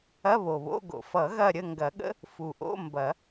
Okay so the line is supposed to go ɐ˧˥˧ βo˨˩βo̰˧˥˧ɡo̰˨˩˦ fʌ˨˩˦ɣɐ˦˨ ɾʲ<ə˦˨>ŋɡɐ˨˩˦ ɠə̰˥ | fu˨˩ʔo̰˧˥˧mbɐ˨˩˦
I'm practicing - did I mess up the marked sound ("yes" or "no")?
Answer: no